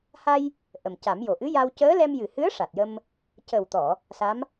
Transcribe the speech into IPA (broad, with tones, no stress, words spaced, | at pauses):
ha˧j | ʔə˨˩mca˨˩˦mjo˨˩ ʔɨ˧˥ja˧w cəː˧˥ lɛ˧mjɨ˨˩hɨ˧˥ə̯ ʂa˨˩t̚jə˧m | cə˨˩wt̪ɔ˨˩˨ | sa˧˥m